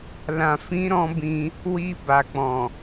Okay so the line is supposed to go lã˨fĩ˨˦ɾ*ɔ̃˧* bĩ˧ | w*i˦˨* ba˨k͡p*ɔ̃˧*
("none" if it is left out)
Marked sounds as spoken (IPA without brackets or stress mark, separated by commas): ɔ̃˧, i˧, ɔ̃˨